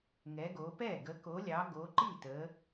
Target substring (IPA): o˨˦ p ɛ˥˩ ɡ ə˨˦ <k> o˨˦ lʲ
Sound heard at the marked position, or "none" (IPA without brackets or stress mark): k